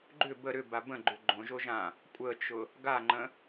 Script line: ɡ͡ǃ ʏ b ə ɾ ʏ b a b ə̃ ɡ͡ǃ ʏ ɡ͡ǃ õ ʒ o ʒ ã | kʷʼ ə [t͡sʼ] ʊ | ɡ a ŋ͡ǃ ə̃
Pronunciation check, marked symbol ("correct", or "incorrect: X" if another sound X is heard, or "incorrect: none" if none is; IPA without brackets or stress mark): incorrect: t͡ʃ